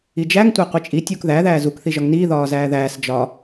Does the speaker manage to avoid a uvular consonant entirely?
no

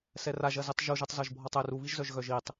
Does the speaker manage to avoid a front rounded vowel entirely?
no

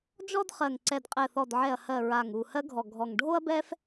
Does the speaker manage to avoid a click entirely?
no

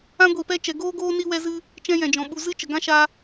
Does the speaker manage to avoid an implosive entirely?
no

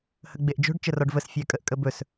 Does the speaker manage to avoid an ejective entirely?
no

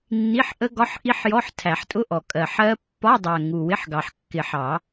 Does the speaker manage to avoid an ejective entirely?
no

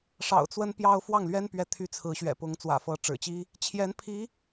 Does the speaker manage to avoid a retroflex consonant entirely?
no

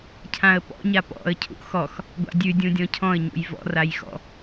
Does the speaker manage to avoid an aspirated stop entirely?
no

